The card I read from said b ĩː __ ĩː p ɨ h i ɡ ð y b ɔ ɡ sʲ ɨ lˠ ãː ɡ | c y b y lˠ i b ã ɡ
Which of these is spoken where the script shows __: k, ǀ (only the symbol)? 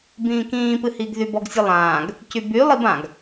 k